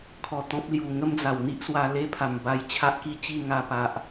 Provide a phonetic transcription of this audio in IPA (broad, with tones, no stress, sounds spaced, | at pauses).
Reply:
kʰ ɔ˧ t̪ ɔ̃˦ p̚ l j u˨˩ ŋ ə˦ m d͡z a˨˩ w n̪ i˦ ʔ s w a˧ l e˦ pʰ a˨˩ m b a˧ j t͡ɕʰ a˦ ʔ k i˦ t͡ɕ i˥˧ ŋ a˧ p a˨ ʔ